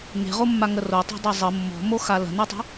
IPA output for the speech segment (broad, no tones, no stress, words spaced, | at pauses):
ŋe̤ʁo mːaŋəro tˤe̤dˤezˤə mːɔ̤moxa lə̤nɔtˤa̤